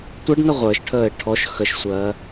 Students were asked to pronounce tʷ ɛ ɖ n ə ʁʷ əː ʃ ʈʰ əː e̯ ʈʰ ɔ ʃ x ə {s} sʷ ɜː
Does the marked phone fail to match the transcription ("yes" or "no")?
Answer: yes